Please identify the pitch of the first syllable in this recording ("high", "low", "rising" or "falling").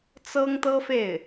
high